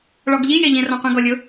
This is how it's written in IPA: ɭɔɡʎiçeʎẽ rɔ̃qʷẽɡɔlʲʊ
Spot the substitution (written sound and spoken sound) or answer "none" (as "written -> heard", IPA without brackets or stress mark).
ç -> j